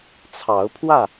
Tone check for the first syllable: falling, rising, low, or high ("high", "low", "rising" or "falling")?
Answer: rising